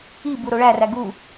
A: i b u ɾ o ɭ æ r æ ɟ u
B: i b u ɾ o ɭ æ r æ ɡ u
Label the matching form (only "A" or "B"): B